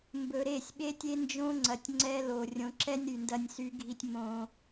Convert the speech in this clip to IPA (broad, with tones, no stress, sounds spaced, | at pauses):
m b ɵ˨ ɾ e˦˨ sʲ ɓ e˦ tʲ e˦ n d͡ʒ õ˦ ŋ͡ǀ ɐ˨ tʲ ŋ͡ǀ ɛ˦ l o˨ rʲ õ˨ ǁ ɛ˦ nʲ ɾ y˨ n d ɐ˦ nʲ s y˦ ɡʱ i˦ tʲ m õ˦